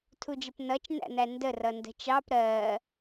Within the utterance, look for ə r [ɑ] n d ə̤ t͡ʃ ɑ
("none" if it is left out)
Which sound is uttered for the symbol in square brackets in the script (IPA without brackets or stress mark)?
ʌ